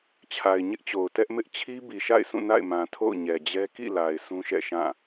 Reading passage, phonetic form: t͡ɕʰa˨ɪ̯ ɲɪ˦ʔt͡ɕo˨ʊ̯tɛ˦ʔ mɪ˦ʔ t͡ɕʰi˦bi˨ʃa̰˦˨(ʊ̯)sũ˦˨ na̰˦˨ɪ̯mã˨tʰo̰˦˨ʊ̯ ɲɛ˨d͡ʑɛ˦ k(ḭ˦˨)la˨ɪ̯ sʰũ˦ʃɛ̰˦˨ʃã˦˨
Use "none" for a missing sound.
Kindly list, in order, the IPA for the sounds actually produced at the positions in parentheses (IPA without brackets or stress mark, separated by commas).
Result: ɪ̯, ḭ˦˨